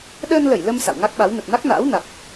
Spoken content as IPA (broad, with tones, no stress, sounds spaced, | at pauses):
ɗ əː˧ n l ə˧˩ j l ə˧ m s a̰˧˨ w ŋ a˦˥ k̚ ɓ a˨˦ w n ə˨˩ t̚ n a˦˥ k̚ n a̰ː˧˥ w n a˨˩ k̚